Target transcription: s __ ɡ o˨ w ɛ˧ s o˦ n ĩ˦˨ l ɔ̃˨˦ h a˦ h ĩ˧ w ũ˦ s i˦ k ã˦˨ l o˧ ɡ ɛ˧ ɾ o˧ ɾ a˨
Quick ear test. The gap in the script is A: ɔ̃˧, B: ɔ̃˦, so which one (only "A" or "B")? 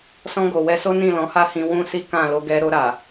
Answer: A